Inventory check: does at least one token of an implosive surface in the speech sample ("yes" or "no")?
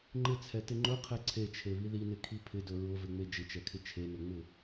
no